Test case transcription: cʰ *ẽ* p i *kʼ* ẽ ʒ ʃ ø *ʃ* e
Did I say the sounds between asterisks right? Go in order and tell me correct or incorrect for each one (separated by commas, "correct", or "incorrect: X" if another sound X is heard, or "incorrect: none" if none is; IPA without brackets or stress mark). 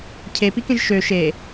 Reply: incorrect: e, incorrect: k, correct